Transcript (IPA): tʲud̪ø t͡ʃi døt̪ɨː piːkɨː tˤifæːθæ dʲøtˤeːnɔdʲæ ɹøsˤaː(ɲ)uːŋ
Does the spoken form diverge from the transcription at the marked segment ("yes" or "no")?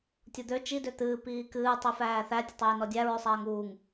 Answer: yes